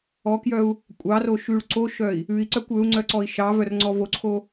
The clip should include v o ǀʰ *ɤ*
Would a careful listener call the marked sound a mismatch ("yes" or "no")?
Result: yes